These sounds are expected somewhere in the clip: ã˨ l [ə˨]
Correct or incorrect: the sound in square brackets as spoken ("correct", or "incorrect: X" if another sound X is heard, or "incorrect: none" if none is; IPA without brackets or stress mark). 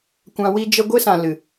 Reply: incorrect: ɨ˨